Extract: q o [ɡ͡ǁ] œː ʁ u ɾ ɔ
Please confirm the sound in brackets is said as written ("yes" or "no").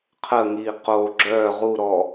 yes